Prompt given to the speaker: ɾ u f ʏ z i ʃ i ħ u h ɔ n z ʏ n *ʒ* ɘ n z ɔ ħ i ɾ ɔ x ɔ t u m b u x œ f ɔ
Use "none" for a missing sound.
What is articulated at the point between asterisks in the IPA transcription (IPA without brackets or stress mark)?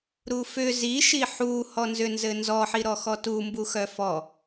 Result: z